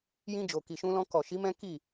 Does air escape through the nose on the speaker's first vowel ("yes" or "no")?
yes